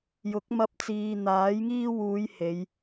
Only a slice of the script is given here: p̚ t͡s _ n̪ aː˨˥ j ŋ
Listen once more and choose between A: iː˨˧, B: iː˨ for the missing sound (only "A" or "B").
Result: B